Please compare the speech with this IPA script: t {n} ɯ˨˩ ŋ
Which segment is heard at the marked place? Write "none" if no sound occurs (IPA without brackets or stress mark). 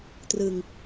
r